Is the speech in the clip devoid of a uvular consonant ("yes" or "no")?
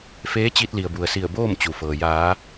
yes